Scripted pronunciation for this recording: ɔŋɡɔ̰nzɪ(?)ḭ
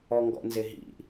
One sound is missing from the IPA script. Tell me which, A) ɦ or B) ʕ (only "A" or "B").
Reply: A